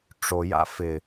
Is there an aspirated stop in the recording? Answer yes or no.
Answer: no